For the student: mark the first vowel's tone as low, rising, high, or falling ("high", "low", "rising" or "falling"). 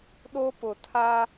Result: high